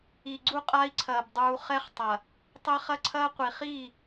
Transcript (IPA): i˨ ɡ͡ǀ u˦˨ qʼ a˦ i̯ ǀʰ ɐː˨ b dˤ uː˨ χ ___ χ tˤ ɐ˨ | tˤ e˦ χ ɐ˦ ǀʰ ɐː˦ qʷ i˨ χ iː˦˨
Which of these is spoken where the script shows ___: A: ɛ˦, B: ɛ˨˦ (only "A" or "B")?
A